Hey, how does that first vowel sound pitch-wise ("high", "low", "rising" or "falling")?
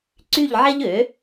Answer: falling